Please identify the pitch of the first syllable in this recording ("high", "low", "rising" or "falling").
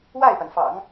falling